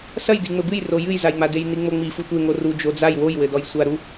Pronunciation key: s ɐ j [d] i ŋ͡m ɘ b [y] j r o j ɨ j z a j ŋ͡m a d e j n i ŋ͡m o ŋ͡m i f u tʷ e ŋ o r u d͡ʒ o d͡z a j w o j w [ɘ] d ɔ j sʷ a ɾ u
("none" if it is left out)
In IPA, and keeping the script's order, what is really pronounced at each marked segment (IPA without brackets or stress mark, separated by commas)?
d, ɨ, ɘ